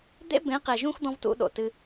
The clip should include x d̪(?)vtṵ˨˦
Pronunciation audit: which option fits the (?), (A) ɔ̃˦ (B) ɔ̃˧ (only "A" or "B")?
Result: A